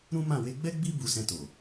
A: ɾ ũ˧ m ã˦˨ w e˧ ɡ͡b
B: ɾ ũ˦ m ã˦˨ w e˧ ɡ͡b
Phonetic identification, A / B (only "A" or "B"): B